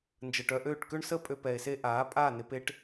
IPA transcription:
n d͡ʒ əː˧ ʈ œ˦ ʔ øː˦˨ ʈ k ø˦ ɳ s ə˦ pʼ ø˧ p ɛː˧ e̯ s e˦ ʔ aː˨˦ pʼ aː˦˨ n ɪ˧ p e˦ ʈ

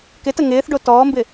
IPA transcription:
k ɪ t ə ŋ ɪː θ ɖ o t ɔː m b ɪ

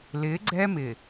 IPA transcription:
l ɪ˨˦ ɡ͡ǀ ɛ˦ m ɪ˨

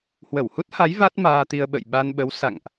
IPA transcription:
h w ə˧˩ w h u˦˥ t̚ h a˨˦ j v a˦˥ t̚ m aː˧ t̪ i˧ ə̯ ɓ ə̰˧˨ j ɓ a˧ n ɓ ə˨˦ w s a̰˧˨ ŋ ʔ

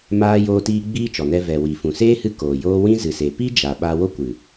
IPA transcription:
m aː˦ j oː˦ t iː˦ ɡ͡b iː˦ t͡ʃ ɔ˨ n ɛ˧ v ɛ˨ w i˨ f ũ˨ s eː˦ h ɨ˦ k oː˨ j oː˦ w ĩ˦ z ɨ˨ s e˨ p i˦ d͡ʒ a˨ ɓ a˧ w o˦ kʷ ɨ˨

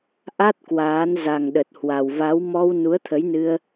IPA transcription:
ʔ a˦˥ t̚ k w aː˨˦ n z a˨˩ ŋ ɗ ə˨˩ t̚ h w a˨˩ w v a˨˦ w m ɔ˧ w n u˨˦ ə̯ t̪ʰ ə˨˦ j n ɨ˧ ə̯

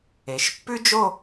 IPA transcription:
e˩˧ ʃ pː ʉ˥ d͡ʒ o˥˧

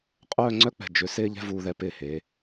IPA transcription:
qʼ œː˥˧ ŋ͡ǀ œ˥ k͡p ɛ̤˧˩ d͡ʒ ʏ˩˧ s ɪː˥ ʎ ɛ̤˥ v uː˧ ð ɛ˧ p ɪː˧˩ h eː˩˧

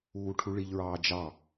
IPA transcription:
uː ʈʰ u ɭ i ʎ ɹ ɑː d͡ʒ ɑ

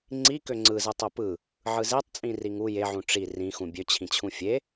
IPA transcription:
ŋ͡ǀ i k ø ŋ͡ǀ ɯ z ɯ tˤ o p ɯ | ʕ ɯ z e tˤ t͡sʼ ĩ r i ŋ u j e ʕ ũ ʈ͡ʂ i r ĩ x ũ bʲ ø t͡ɕʰ ĩ t͡ɕʰ ũ fʲ e

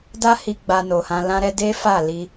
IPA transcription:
d a˦ h i˧ ɡ͡b a˧ n o˨ h ã˧ l ã˦ ɾ ɛ˦ d e˦ f a˦˨ l i˧

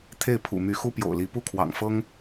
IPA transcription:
t̪ʰ e˥˩ ɪ̯ pʰ ṵ˨˩ m y˧˥ x u˥ p j o̰˨˩ ʊ̯ l i˧˥ p u˥˩ kʰ w ɑ̰˨˩ ŋ f ɤ˥ ŋ

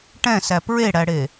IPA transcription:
ʈ ɛ̃ s æ p ɹ e ɽ æ ɽ e

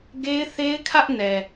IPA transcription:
ɡ e˦ ɪ̯ θ e˦ ɪ̯ kʰ ä˦ ʔ n ɛ˨

